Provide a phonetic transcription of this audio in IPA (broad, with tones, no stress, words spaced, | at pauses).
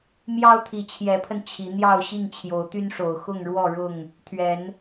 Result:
mjɑ˦ʊ̯t̪ʰi˨˦t͡ɕʰjɛ˨˦pʰə˧n t͡ɕʰi˨˦ n̪jɑ˥˨ʊ̯ɕi˥˨ŋ t͡ɕʰjo˨˦ʊ̯t̪y˦nʂo˨˩ʊ̯ xʊ˥˨ŋɻwɔ˥˨ɻʊ˥˨ŋ | t̪ʰɥɛ˨˦n